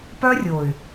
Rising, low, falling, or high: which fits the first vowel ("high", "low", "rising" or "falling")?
high